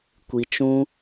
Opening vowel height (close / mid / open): close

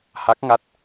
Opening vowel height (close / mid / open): open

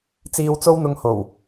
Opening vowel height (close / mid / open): close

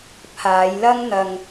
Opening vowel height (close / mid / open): open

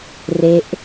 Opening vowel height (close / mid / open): mid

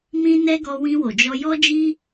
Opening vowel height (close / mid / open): close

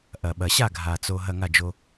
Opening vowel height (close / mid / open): open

